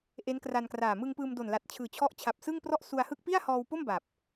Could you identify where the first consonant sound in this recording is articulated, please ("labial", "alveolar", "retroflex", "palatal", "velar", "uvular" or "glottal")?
glottal